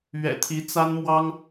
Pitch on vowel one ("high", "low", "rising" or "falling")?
low